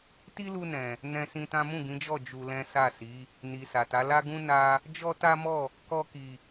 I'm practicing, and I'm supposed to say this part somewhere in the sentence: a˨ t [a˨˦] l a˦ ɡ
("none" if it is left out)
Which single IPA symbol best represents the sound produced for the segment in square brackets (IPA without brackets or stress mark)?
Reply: a˨˦